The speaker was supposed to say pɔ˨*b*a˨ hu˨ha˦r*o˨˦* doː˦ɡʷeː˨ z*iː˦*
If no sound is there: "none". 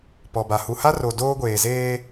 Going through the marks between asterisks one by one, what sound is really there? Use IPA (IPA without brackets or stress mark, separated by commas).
b, o˨, eː˦